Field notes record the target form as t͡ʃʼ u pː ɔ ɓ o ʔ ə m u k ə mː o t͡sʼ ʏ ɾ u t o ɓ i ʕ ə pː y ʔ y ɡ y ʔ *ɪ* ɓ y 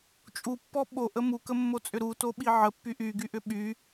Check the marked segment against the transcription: incorrect: ʏ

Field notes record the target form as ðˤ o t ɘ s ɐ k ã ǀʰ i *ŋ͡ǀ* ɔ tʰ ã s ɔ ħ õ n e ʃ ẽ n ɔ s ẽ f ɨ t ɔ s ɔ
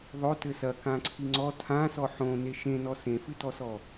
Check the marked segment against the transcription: correct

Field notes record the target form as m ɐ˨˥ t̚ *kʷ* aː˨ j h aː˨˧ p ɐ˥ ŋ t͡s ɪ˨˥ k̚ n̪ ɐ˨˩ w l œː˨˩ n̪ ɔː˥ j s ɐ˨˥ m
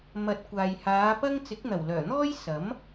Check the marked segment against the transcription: correct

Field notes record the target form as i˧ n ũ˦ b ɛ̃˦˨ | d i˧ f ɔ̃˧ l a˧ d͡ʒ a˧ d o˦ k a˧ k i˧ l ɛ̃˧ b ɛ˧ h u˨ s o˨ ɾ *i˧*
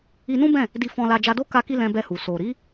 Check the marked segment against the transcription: incorrect: i˨˦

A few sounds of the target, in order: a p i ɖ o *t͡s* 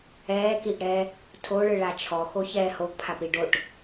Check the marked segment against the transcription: incorrect: ʈ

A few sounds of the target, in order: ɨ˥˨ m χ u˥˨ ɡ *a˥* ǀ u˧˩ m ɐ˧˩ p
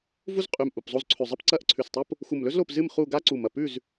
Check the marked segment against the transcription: correct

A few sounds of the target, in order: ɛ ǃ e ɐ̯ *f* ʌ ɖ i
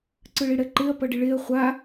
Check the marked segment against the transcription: incorrect: p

